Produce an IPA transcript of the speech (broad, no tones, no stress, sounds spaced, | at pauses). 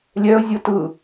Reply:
lʲ ɛ ə̯ zʲ ɯ t ɯ